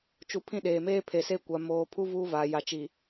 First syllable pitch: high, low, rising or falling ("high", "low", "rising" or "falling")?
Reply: low